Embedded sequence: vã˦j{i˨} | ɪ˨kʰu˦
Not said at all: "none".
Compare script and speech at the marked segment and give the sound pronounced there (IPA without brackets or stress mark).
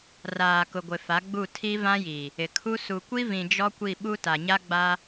i˨